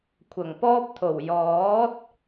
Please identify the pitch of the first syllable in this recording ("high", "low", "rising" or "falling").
low